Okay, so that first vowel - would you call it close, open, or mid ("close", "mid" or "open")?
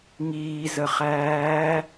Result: close